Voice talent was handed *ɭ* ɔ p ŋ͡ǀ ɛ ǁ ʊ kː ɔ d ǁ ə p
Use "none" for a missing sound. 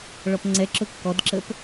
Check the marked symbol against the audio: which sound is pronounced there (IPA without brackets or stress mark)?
ɭ